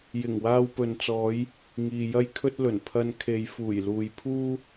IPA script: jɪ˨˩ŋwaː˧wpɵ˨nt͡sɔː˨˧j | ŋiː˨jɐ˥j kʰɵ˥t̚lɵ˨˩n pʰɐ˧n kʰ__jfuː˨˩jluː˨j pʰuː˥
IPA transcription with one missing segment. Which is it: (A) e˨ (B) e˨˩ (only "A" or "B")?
A